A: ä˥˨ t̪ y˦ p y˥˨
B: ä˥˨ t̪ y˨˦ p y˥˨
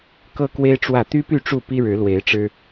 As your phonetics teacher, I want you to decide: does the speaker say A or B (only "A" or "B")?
A